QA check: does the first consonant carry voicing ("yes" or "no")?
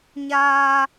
yes